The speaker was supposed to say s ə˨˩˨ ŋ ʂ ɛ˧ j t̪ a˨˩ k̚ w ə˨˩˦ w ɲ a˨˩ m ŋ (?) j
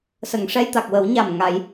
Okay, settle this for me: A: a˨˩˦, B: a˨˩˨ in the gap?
A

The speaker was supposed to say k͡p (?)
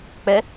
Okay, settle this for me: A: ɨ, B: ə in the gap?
B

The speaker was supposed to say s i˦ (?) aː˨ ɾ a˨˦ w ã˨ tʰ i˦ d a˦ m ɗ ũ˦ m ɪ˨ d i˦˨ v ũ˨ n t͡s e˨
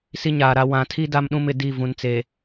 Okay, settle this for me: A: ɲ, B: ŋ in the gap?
A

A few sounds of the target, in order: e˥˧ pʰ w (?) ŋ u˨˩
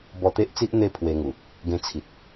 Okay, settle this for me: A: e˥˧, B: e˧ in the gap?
B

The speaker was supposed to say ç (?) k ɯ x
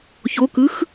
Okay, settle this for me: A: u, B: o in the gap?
B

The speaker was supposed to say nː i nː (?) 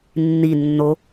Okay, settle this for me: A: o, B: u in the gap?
A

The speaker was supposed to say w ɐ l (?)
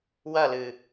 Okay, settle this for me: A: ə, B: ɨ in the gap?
B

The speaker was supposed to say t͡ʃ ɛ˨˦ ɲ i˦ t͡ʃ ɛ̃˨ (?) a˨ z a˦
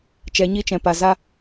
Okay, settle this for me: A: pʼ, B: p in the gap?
B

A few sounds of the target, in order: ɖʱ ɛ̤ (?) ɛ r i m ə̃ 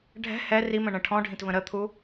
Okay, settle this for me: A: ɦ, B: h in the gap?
B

